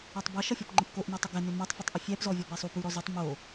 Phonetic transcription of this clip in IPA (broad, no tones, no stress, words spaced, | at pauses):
ɔtˤbʌʃʌfʲɔp ŋ͡ǃəpkoʔnɔtˤʏ ɡɛnʏ mʌtˤfʉtˤ ʔʏfʲɛpzɔvʲɔ bɛsˤup ʉɾɔzutˤ mo